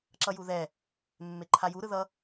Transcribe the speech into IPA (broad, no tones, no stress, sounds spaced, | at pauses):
ǁ ʌ j u ð ɛ | mː e ǃʰ a j u ɾ ɯ ð ʌ